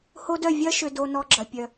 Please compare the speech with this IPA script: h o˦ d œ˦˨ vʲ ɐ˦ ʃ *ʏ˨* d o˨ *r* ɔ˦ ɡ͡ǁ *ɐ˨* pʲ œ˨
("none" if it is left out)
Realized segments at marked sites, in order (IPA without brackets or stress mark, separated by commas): ʏ˨, n, ɐ˨